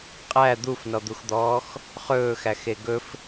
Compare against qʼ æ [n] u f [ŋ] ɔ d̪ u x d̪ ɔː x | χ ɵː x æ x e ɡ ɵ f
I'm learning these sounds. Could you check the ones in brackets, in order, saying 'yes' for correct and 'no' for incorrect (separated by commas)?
no, no